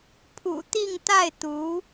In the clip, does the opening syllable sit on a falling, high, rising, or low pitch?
low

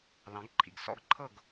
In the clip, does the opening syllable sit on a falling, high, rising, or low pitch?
rising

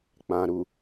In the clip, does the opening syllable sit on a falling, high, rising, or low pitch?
low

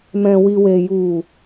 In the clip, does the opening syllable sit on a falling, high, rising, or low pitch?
low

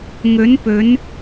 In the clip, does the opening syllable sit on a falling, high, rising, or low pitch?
rising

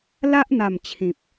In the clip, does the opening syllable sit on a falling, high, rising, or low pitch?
high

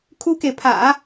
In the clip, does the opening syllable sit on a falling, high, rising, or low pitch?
high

